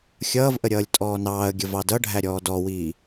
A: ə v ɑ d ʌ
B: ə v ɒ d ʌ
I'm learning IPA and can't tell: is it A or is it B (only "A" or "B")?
A